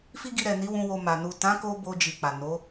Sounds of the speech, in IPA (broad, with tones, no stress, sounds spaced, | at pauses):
f i˦ ɡ i˧ ɾ ɛ˨ n i˨˦ w ũ˧ w o˧ m a˨ n u˨ t ã˨˦ k o˧ b o˧ d͡ʒ i˨ k͡p a˨ n o˨˦